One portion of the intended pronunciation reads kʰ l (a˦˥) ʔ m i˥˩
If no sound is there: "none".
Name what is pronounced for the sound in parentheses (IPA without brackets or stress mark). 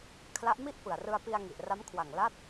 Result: a˦˥